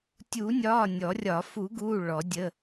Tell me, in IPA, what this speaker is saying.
tʲ u˨˩˦ nʲ ɒː˩˧˩ nʲ ɔ˨˩˦ rʲ ɒ˨˩˦ f u˨˩˦ ɡ uː˩˧˩ ɭ ɔ˨˩˦ dʲ ə˩˧˩

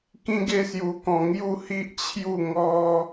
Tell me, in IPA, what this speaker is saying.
k ĩ˦ ɡ e˦ s j u˧ k ɔ̃˧ ŋ j u˥˧ h i˦ ʔ t͡ɕʰ j u˥˧ ŋ ɔ˦

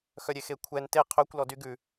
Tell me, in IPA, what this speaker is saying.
x œ ɾʲ e x e kʷʰ ɛ n t e qʰ ø kʷ l ɔ d y ɡ ʉ

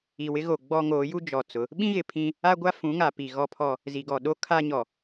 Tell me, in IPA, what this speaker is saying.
i˨ w ɪ˦ ɣ o˨ ɡ͡b ɔ˦ ŋ oː˨˦ j u˦ d͡ʒ ɔ˨ t͡s ʊ˨˦ | ɓ ĩ˦ ɣ ɪ˨ pʰ ĩ˦ | a˦ ɡʷ a˦ f ũ˨˦ ŋ a˨ p i˨ ɣ ɔ˦ pʰ ɔ˦ | z i˨ ɡ ɔ˨ ɗ o˦ kʰ a˦ ɲ ɔ˨

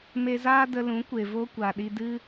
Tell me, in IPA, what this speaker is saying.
m e˧ z aː˦ d ə˧ l ũ˨˦ kʷ e˨ v o˦ kʷ a˨ ɗ i˧ d ɨ˦

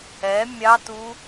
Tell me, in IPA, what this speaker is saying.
ɛ mʲ ɑ t u

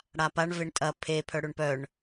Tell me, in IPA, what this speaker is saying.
ɽ a p a ɳ v e ɳ tʼ ɐ pʰ e pʰ œ ɽ ø ɳ p œ ɳ

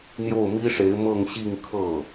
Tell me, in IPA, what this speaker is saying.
n̪ j o˥˩ ʊ̯ m i˥ ʂ e˧˥ ɪ̯ m ɤ˥˧ ŋ ɕ i˥˧ ŋ kʰ ɤ˥˩

